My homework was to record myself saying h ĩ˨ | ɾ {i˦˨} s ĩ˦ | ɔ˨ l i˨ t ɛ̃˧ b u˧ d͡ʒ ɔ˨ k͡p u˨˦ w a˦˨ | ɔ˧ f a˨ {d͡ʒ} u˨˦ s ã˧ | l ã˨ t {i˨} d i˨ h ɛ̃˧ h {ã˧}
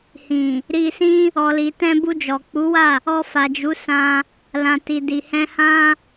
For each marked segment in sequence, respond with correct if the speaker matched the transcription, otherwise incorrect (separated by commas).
incorrect, correct, correct, incorrect